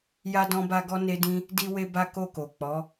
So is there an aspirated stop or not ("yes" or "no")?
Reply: no